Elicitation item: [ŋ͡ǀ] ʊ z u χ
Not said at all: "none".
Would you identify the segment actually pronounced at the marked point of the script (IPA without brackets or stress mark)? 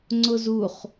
ŋ͡ǀ